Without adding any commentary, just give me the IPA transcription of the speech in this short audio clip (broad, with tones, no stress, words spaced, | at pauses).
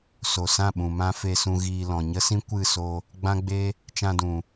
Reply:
so˨sã˦˨ɓũ˨ mã˦fe˧sũ˧ ɣiː˧ lɔ̃˨ ɲə˦sĩ˦ kʷɨ˦˨so˧ | ɡ͡bã˦ɡ͡be˦ | t͡ʃã˧dũ˨